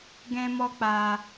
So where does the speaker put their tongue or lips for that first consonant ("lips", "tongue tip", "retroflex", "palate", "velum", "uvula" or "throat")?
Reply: velum